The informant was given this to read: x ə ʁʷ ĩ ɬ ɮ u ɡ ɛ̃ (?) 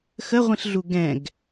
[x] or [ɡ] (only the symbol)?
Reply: ɡ